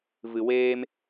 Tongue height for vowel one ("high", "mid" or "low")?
high